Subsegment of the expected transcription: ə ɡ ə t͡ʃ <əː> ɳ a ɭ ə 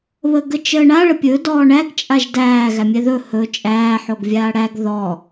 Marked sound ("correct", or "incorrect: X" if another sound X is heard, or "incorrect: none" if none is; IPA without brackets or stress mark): correct